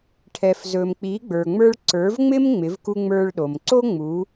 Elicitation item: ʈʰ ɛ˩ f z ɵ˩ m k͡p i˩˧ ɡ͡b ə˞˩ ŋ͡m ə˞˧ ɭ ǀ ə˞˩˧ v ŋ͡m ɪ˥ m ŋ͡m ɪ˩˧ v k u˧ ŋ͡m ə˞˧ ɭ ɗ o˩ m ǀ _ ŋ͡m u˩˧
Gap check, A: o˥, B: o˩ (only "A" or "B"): A